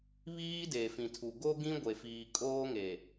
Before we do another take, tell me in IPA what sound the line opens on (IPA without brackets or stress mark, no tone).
β